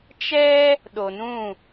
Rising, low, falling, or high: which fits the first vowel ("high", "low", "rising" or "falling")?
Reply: high